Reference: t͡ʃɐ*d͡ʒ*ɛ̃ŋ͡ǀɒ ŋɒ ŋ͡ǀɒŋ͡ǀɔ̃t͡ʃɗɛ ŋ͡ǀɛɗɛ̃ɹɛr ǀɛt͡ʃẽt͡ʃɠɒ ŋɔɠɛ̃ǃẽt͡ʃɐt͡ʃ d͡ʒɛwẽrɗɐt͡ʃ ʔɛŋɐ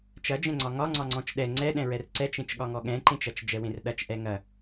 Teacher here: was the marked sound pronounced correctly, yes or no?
yes